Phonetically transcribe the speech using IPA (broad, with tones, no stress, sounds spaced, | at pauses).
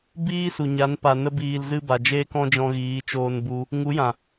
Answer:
b iː˦ s u˨ ɲ a˨˦ n p a˨ n ə˦ b iː˧ l z ɨ˦ b a˨ d͡ʒ eː˦ k ɔ̃˦ d͡ʒ ɔ̃˧ ɣ iː˨˦ t͡ʃ oː˧ n b u˧ | ŋ u˨˦ j ã˨